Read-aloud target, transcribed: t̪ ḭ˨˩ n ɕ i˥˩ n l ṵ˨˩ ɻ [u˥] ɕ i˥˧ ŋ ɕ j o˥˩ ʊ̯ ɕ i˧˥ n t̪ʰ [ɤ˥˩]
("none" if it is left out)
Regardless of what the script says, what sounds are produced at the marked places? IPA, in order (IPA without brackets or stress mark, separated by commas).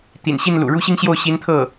u˥˧, ɤ˥˩